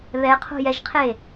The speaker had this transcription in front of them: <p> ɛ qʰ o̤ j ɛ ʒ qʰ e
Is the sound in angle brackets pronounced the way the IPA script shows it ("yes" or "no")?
no